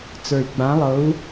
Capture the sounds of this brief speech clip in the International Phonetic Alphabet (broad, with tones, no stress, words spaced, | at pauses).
t͡sə˞˨˩i̯ɡ͡bã˨˦lˠɤ˨˦u̯